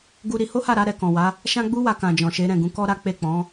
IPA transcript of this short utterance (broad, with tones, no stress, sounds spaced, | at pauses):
ɡ u˧ ɾ i˧ h o˦ h a˦˨ ɾ a˨˦ ɾ ɛ˧ k ɔ̃˨ w a˨˦ | ʃ ã˦ ɡ͡b u˦ w a˧ k ã˨ d͡ʒ ɔ̃˨ ʃ e˨˦ ɾ ɛ̃˦˨ ɡ ũ˨˦ k ɔ˦ ɾ a˦ k͡p e˦˨ k͡p ɔ̃˨˦